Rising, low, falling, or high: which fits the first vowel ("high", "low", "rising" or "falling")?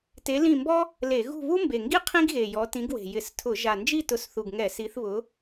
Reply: rising